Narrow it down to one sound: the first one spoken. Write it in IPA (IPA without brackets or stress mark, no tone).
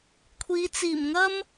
kʷʰ